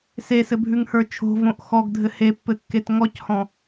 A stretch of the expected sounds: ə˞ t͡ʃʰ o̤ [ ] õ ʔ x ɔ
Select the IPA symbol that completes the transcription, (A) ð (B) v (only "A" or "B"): B